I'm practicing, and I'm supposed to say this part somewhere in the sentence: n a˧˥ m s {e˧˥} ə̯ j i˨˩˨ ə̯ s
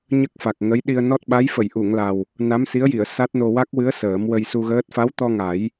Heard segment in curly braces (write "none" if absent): i˧˥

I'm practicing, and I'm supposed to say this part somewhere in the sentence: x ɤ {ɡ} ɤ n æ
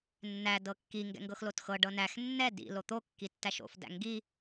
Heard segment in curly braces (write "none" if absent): ɖ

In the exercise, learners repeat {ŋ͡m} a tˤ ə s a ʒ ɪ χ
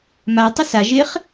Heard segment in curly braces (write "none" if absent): m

